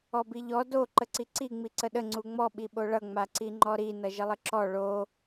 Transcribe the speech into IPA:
ɔbiʎɔ do ǃəǀiǀi ŋ͡miǀəɗə ŋ͡ǀuŋ͡mɔ ɓiɓoɭʌ ŋ͡maǀiŋ͡ǃɔɾi nʌʒəlˠəǁɔ ɭo

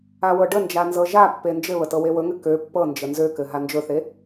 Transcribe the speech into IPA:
awɤɖənd͡ʒa nzɤʒapːe nd͡ʒɘβə tɤwewɵŋɘ kø pːɤnd͡ʒə nzøkɘ ɦand͡ʒɵθe

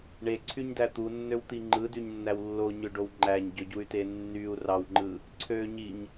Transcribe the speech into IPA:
ɳeǀʰyɲdæ t̪unːøwt̪i ŋ͡ǃɯdyɲnːæw lːoɲøɖow ŋ͡ǃæɲɟøɟuy̯te nːyu̯ rɑwŋ͡ǃɯ | ǀʰø ɲiɲ

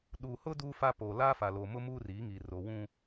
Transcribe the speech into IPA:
ɗuː˨hʊ˦ duː˦fa˦poː˨ laː˦fa˨lo˨ mʊ˦ muː˦riː˨˦ŋiː˨ ro˨wũ˦

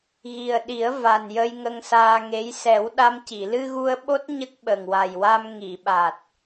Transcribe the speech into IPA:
ɣi˨˩ə̯ɗi˨˩˦ə̯ va˨˩njə˧j ŋə˧ŋsaː˧ŋe˧˥j sɛ˨˩˦wɗa˧mci˨˩˨ lɨ˧ɣu˧ə̯ɓo˦˥t̚ ɲə˦˥k̚ɓə˨˩ŋwa˨˩jwa˧m ŋi˨˩˨ɓa˨˩t̚

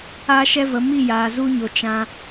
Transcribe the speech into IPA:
aː˦ʃɛ˦və˨˦ mi˦˨jaː˨zu˧ɲo˨ t͡ʃã˧

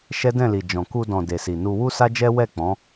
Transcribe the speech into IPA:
ʃɛ˦dɛ̃˦˨li˨ d͡ʒɔ̃˨ku˧dɔ̃˨ de˨si˨nu˧ wu˦sa˦d͡ʒɛ˦ wɛ˦˨ k͡pɔ̃˨˦

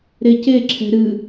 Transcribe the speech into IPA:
ɾece ǁʰɛ̤ɾɨ

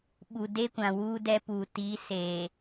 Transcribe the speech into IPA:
ɓu˨de˦kʷã˨ wuː˦dɛ˦puː˨tiː˨˦ se˨

